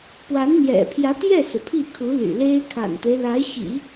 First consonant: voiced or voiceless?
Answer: voiceless